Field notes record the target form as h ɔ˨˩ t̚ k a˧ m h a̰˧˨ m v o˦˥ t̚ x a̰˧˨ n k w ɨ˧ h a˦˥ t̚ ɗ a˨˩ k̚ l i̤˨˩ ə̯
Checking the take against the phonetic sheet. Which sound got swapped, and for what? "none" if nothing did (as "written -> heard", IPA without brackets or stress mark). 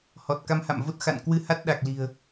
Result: none